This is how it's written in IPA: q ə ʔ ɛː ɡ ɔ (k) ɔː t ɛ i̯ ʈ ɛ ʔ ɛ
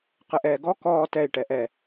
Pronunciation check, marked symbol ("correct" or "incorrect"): correct